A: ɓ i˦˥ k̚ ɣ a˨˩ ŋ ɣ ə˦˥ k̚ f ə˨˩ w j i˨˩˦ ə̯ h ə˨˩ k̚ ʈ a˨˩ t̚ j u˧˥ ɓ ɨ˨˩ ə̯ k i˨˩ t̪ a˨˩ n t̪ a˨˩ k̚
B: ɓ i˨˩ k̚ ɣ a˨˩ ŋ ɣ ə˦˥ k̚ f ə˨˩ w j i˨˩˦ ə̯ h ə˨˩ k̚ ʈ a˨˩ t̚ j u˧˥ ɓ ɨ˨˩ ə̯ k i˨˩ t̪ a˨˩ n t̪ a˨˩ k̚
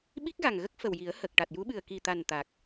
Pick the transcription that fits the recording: A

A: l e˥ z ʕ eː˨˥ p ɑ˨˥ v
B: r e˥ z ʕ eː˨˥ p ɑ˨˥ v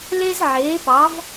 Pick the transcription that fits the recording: A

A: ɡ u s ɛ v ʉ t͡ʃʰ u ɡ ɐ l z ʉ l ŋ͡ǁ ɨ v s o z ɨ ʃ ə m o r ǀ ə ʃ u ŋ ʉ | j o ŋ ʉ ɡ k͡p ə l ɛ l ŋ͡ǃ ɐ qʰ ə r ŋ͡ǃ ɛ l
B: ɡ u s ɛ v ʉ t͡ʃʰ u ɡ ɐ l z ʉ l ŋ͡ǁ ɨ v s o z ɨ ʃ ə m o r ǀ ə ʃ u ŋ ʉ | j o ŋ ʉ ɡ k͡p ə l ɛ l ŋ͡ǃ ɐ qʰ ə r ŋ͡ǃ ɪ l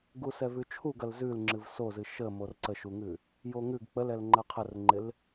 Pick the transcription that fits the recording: B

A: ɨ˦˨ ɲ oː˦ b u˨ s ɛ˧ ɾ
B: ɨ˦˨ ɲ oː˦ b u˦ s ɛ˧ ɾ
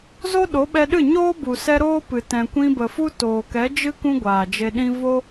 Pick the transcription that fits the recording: A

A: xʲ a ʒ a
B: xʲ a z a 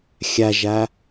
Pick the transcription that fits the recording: A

